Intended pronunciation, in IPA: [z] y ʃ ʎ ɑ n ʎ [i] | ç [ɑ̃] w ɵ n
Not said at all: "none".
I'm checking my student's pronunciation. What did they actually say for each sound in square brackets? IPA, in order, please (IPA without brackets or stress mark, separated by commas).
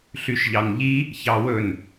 ɬ, i, ɑ